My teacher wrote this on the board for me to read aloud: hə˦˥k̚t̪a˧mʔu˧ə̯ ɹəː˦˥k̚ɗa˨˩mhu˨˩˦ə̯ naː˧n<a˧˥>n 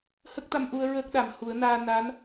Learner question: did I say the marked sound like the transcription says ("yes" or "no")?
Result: yes